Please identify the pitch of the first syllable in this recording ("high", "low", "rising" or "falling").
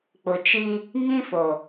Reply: low